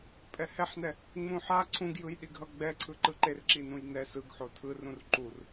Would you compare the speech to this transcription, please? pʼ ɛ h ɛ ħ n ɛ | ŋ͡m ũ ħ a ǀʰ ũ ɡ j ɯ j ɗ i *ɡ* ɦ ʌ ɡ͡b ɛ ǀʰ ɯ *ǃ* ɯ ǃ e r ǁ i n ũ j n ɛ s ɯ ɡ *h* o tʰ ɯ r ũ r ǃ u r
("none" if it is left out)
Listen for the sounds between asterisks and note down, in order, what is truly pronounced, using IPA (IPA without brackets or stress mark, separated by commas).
ɡ, ǃ, ħ